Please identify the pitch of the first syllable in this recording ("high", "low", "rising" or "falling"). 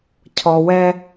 low